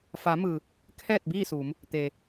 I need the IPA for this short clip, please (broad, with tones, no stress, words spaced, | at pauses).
fa˩˧mɯː˩ | kʰɛː˥˨t̚biː˥˨suː˩˧m | t̪eː˩